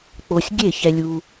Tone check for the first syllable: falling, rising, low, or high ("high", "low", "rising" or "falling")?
low